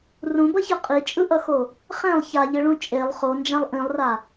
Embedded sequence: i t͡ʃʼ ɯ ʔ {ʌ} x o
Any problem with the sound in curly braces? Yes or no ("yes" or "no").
no